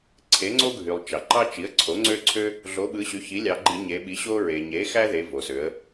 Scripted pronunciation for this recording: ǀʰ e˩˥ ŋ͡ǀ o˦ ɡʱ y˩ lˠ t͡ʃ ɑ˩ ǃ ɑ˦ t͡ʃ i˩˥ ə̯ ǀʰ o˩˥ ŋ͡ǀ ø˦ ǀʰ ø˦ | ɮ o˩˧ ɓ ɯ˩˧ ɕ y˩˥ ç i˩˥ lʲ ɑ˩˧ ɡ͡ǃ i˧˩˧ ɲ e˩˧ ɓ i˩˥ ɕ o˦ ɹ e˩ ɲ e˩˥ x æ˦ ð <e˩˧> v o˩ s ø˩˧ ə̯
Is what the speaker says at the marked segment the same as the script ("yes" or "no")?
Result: yes